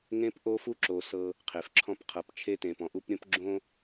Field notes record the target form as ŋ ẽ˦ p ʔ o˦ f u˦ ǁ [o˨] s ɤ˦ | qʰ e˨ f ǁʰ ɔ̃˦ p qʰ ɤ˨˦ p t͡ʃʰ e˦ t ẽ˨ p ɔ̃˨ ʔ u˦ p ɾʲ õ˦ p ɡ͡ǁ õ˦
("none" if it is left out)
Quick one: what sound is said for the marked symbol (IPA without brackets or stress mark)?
o˨